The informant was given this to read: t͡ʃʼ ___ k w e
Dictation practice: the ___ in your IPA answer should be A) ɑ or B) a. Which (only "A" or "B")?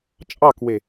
A